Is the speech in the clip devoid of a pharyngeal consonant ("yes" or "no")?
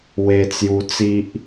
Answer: yes